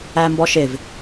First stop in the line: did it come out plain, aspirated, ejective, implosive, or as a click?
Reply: plain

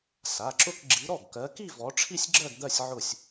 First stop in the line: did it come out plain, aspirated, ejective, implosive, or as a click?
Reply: click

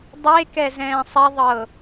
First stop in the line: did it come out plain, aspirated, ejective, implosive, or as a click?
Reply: plain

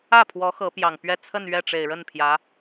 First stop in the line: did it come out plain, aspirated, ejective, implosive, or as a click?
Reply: aspirated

